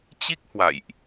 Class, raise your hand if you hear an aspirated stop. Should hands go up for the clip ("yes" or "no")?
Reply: no